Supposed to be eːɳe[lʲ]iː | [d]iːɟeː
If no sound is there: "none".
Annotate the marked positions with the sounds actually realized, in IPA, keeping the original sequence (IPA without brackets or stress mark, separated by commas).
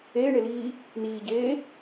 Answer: l, n